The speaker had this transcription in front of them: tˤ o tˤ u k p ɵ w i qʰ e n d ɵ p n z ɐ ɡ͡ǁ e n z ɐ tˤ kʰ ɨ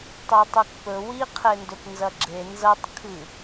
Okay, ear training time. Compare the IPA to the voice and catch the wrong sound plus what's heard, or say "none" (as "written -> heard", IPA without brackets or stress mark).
none